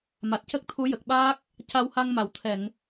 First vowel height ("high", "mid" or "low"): low